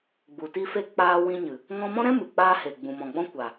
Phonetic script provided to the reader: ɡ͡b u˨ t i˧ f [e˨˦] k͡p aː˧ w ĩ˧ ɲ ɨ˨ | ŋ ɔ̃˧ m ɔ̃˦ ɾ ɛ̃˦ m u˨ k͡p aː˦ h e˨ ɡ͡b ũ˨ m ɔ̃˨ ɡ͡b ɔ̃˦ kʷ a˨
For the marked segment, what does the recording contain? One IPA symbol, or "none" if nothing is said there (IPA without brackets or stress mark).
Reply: e˧